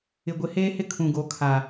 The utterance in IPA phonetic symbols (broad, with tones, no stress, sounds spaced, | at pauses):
ɪ˨ ɡʷ ɪ˨˦ h eː˦ h ɪ˦ kʰ ũ˨ ɡ o˨˦ kʰ a˨